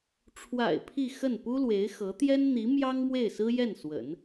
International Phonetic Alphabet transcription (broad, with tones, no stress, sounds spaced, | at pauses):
ʈ͡ʂʰ w a̰˨˩ ɪ̯ pʰ i˥˧ x ə˥˩ n p u˥ l w e˧˥ ɪ̯ x ɤ˧˥ t̪ j ɛ˥ n n̪ i˧˥ m j ɑ˥ ŋ m w e˥˩ ɪ̯ s ɹ̩˥ j ɛ˥˩ n s w ə̰˨˩˦ n